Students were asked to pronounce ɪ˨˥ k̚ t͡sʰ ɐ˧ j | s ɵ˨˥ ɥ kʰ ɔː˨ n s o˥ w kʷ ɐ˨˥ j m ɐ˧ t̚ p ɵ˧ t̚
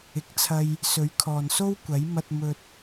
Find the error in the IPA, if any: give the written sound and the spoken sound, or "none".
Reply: p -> m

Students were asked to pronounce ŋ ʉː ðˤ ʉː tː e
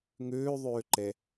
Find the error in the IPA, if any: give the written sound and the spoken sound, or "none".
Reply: tː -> ǃ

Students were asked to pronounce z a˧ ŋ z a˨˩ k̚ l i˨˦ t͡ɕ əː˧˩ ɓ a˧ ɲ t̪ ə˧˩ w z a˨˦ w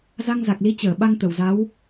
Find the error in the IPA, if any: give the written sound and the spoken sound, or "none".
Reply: ɲ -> ŋ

